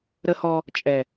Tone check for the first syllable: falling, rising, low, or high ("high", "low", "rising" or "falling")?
high